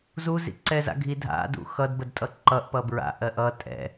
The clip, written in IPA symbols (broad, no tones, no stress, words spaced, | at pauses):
zuzḭ ǀɛːza̰ɡʱi dʱa̰ dṵxʌdbəd tʼʌǃʌʔ pʌbɹa̰ ʔɜʔʌ tʼɛ̰